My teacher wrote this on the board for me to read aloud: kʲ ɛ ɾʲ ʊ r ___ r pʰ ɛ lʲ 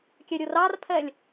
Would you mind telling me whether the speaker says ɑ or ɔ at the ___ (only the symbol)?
ɑ